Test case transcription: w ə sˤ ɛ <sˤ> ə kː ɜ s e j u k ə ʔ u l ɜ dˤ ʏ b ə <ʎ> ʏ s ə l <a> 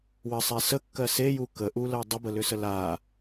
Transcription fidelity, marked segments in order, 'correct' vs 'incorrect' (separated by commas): incorrect, incorrect, correct